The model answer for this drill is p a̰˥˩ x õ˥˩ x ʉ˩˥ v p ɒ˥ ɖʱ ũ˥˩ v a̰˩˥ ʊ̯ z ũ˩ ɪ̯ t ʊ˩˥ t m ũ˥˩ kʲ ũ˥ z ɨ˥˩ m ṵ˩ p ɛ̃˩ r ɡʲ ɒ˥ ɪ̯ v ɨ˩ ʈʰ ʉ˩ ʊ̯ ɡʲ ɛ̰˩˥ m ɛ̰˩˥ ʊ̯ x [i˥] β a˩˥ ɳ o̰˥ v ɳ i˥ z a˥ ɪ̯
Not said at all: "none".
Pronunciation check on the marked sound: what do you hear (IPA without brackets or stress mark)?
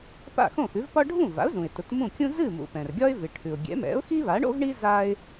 i˥